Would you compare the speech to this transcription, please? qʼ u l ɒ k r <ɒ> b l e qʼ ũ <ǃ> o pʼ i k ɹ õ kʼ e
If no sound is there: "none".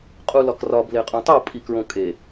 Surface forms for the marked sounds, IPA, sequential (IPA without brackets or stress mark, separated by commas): ɒ, tˤ